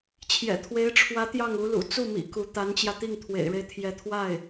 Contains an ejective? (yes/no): no